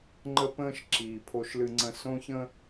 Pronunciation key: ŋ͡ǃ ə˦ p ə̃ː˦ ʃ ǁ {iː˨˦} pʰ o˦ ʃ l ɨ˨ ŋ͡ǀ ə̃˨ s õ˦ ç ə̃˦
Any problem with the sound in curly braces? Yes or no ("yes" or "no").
yes